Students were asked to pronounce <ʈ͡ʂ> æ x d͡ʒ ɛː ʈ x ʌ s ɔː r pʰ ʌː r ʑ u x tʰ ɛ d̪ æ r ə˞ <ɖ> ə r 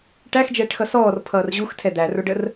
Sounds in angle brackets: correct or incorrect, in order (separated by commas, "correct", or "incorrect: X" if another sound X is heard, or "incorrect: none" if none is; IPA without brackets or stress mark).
incorrect: ʈ, correct